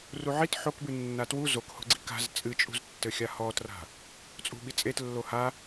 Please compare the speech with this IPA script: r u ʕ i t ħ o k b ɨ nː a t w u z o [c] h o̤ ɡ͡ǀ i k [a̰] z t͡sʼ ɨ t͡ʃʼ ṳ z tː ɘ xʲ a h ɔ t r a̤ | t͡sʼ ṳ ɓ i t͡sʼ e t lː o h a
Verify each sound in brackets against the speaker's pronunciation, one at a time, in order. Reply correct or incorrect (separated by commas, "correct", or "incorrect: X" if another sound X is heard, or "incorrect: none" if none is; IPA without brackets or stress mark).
incorrect: k, incorrect: a̤